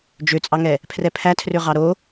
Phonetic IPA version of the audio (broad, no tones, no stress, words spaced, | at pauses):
d͡ʒøt͡sʼɑŋɛ | pʰrɛpʰætʰrø ʁɑɾo